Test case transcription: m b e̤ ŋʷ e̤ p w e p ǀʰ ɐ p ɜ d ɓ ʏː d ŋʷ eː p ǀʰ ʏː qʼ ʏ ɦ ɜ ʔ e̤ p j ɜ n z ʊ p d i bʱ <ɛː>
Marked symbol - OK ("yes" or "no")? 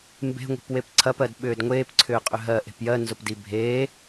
no